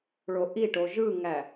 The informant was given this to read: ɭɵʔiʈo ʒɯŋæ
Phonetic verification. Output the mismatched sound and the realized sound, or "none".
ɵ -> o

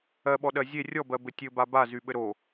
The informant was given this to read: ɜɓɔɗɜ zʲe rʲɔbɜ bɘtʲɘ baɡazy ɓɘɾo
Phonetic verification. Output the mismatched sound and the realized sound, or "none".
ɡ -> b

